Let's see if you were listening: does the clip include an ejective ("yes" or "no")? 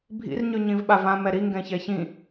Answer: no